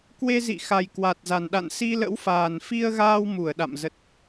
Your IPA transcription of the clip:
k w e˧ z ḭ˧˨ x a˨˩ j k w a˨˩ t̚ z a˨˩ n ɗ a̰˧˨ n s i˧ l ə̰˧˥ w f aː˨˩ n f i˧ ə̯ ɣ aː˧ w m u˧˩ ə̯ ɗ a̰˧˨ m z ə˨˩ t̚

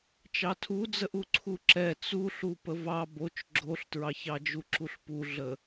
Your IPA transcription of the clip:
t͡ʃ ɑ tʰ u d͡z ə ʔ u ǀʰ u ǁ ɛ t͡s u ɬ u p ə v ɑ b o t͡ʃ ɡ͡ǁ o ɬ t ɹ ɑ ç ɑ d͡ʒ u ǁ u ɬ p u ɮ ə

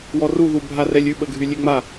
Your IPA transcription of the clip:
w ɔ r u ð u bʱ a r ɛ lʲ ʉ ɓ ə ɡʱ y lʲ e ŋ͡m a

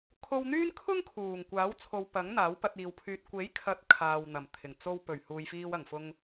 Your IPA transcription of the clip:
kʰ o˧ w n̪ yː˥ n kʰ ʊ˥ ŋ kʰ uː˨˩ ŋ kʷ aː˨˥ w t͡sʰ o˨˧ w p ɐ˨˥ ŋ n̪ aː˨˥ w p ɐ˧ t̚ iː˨˧ w pʰ yː˧ t̚ kʷ e˨˥ j kʰ ɐ˨˥ t̚ kʰ aː˨ w n̪ ɐ˨˩ m t̪ʰ ɪ˨˩ ŋ t͡s o˧ w p ɵ˨˩ ɥ h uː˨ j f iː˧ w ɐ˨˩ ŋ f ʊ˧ ŋ

